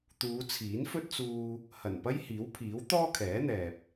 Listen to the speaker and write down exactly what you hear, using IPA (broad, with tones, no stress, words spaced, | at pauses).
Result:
t̪uː˨˧t͡sʰiː˨˥nfɵ˥t̚t͡suː˧ | hɐ˨˩npɐ˥jhiː˨˥wpʰiː˨˥w t̪ɔː˥kʰɛː˨˥n̪ɛː˨p̚